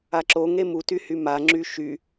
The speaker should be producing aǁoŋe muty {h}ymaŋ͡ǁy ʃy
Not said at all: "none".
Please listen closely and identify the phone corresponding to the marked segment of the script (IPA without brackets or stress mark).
h